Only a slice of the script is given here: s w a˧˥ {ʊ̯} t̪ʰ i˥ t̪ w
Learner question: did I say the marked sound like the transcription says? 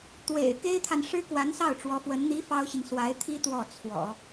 no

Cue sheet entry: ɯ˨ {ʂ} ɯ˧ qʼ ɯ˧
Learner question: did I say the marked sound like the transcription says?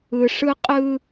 yes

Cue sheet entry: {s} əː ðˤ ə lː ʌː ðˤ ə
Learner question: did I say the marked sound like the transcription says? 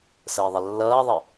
yes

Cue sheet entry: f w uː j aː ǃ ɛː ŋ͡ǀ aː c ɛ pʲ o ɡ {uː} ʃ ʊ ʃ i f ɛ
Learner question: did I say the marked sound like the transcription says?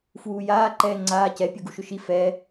no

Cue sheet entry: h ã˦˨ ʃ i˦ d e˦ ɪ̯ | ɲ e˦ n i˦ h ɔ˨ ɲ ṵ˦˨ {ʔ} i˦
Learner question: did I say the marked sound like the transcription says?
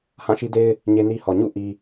yes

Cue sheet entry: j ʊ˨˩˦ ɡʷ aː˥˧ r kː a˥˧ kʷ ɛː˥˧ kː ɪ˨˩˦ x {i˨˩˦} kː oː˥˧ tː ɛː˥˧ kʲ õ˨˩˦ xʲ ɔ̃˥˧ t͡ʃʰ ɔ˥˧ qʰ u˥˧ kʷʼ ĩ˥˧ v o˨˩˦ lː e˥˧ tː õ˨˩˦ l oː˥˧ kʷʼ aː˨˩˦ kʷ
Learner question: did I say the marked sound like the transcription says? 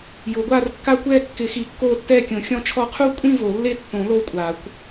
yes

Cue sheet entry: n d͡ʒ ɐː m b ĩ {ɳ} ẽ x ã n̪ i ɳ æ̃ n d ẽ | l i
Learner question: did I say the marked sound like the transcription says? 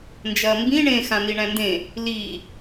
yes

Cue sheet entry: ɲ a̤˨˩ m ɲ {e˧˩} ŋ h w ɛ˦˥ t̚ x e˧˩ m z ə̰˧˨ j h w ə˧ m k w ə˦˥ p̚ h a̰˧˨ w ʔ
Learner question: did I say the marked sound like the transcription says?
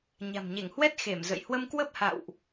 yes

